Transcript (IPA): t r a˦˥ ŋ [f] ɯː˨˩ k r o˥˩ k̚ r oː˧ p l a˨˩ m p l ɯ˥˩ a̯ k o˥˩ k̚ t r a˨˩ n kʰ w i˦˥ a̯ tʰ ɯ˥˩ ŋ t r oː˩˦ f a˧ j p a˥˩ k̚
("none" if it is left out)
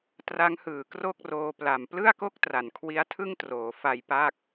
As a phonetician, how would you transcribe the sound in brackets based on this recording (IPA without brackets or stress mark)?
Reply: h